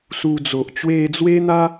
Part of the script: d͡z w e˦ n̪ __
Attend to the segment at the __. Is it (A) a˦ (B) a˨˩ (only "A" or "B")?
A